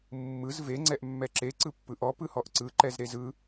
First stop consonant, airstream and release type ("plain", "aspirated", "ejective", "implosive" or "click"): click